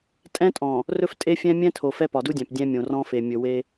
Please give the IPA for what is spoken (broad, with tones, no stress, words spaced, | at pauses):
tʼɛ̃˦tʼɔ̃˨ | rɵ˦f tʼe˦fʲɛ̃˦mʲɛ̃˦ tʰo˨fɛ˦ pɒ˨du˦dʲæ̃˨p dʲɛ̃˦mʲõ˨rɔ̃˦ fe˨mʲɵ˨ we˦